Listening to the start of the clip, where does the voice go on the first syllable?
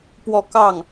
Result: falling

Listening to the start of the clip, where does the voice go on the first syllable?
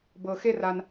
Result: high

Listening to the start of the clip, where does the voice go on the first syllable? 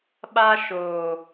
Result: high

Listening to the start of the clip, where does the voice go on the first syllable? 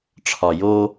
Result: low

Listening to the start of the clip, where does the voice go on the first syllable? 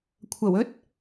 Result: low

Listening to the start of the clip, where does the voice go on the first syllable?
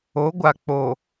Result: rising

